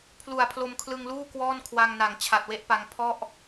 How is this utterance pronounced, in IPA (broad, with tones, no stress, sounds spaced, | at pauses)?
pʰ l u˨˩ a̯ pʰ l o˧ m kʰ l ɯ˧ ŋ l uː˥˩ k w ɔː˥˩ n kʰ w a˧ ŋ n a˨˩ ŋ t͡ɕʰ a˨˩ t̚ w e˦˥ ʔ p a˧ ŋ pʰ ɔ˥˩ ʔ